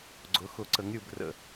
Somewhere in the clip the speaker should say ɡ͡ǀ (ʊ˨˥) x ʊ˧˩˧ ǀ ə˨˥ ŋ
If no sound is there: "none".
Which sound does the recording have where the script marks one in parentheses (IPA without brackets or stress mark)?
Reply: ʊ˨˥